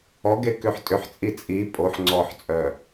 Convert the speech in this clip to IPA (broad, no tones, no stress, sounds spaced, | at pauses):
ɔ ɡ e k ʏ ħ tʼ ʏ ħ t͡sʼ i t͡sʼ i pʼ o ħ ŋ͡ǀ ɔ ħ t͡sʼ œ